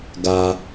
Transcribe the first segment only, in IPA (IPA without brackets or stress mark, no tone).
ɡ